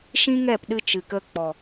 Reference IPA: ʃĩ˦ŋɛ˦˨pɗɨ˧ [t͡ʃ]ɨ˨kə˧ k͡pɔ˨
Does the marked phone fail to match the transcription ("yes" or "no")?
no